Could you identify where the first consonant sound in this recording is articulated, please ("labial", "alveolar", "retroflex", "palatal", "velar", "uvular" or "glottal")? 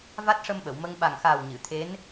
labial